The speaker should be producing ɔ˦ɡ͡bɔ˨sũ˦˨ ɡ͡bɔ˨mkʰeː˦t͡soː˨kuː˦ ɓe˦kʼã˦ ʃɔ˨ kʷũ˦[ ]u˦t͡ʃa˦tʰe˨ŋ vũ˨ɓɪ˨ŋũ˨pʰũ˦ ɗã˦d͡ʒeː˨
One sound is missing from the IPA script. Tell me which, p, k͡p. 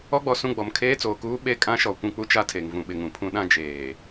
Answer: k͡p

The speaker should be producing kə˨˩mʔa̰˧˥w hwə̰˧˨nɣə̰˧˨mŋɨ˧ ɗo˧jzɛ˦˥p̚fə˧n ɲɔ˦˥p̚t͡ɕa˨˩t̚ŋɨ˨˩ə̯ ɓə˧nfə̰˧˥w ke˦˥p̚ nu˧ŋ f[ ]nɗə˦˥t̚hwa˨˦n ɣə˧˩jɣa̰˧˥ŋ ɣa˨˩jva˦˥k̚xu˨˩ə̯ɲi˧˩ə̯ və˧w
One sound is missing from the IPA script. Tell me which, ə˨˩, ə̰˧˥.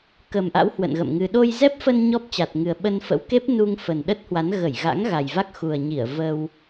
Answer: ə˨˩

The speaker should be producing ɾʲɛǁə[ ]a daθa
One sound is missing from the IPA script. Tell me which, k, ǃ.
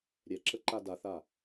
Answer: ǃ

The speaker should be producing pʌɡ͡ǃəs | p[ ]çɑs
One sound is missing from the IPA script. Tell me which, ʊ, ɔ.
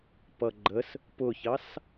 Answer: ʊ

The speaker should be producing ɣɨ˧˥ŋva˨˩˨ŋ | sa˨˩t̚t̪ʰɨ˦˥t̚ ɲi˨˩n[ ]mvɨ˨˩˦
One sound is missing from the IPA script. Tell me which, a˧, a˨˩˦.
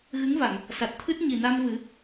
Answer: a˧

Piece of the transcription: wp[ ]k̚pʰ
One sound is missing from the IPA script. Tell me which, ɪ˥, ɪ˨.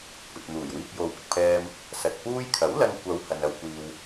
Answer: ɪ˨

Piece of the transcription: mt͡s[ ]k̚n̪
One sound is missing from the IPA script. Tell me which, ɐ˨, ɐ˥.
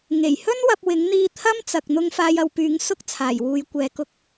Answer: ɐ˨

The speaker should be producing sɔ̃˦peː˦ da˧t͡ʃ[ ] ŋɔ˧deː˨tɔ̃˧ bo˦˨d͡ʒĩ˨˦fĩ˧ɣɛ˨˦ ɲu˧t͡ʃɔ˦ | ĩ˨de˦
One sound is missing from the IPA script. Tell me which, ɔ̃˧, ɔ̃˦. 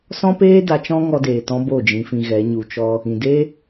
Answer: ɔ̃˦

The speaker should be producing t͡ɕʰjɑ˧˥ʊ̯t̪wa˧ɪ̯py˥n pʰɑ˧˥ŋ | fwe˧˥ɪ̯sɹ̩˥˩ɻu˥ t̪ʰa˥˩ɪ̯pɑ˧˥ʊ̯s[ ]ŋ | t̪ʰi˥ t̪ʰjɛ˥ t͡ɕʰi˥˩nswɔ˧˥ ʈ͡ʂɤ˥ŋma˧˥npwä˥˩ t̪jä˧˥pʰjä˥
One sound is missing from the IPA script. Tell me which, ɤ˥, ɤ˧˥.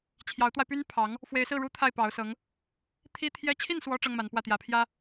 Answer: ɤ˧˥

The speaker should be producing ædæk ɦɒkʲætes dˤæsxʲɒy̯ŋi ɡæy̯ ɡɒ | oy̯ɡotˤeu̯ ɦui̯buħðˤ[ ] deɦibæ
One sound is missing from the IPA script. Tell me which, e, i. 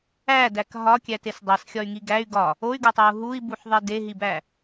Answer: e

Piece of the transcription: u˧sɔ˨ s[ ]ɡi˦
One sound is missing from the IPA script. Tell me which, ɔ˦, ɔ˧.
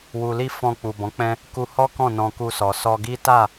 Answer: ɔ˧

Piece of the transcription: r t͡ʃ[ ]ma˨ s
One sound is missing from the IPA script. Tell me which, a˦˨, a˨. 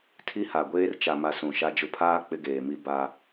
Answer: a˨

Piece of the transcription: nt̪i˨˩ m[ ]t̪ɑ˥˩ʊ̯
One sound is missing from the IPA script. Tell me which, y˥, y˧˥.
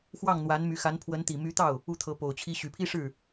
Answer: y˧˥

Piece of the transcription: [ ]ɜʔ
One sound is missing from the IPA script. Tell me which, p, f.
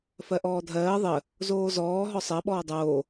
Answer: f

